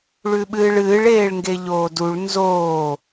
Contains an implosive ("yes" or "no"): yes